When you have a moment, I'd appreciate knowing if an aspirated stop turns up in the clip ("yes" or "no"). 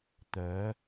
no